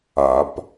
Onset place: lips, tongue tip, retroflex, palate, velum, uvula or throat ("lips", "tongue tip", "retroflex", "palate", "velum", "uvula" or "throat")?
lips